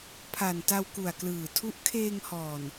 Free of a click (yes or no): yes